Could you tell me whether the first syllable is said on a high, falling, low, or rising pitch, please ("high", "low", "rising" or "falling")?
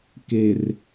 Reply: low